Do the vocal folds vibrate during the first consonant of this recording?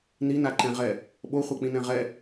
yes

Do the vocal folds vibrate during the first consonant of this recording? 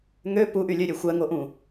yes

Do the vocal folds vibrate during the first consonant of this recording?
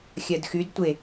no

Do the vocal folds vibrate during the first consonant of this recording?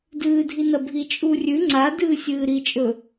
yes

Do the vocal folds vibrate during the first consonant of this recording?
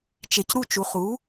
no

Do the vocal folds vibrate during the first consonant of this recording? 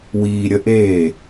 yes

